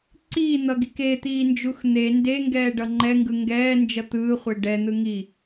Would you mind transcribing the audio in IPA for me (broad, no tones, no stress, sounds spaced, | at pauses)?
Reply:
ǀ iː n̪ ʌ ɡ i k e t̪ iː n d͡ʒ u x n̪ e n d e ŋ ɡ ɛː ɖ ʌ ŋ͡ǃ ɛ ŋ ɡ ɯ ŋ ɡ ɛː n d͡ʒ ʌ t̪ ɯː χʷ e ɖ ɛ n̪ ɯ ŋ i